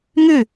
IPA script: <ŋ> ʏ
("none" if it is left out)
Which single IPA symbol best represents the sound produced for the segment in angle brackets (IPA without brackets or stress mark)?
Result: ŋ